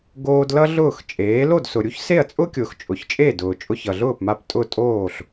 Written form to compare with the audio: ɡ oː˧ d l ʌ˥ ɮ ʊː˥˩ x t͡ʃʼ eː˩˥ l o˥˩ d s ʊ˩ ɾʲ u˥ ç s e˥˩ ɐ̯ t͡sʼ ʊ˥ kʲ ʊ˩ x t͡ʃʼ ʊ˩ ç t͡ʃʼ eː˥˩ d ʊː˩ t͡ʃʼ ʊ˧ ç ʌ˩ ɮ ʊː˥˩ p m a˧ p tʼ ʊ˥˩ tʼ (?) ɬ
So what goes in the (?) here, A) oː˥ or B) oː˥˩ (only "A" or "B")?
B